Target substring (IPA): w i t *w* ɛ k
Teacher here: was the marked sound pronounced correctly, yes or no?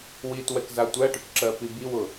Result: yes